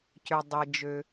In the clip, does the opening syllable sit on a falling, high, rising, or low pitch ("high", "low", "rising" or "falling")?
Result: low